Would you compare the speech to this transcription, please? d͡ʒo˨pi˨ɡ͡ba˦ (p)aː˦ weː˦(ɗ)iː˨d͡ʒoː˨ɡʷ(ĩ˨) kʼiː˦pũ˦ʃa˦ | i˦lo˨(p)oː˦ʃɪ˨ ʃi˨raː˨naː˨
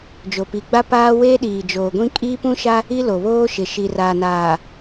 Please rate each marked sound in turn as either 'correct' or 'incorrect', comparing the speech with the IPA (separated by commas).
correct, correct, incorrect, incorrect